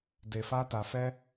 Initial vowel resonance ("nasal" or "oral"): oral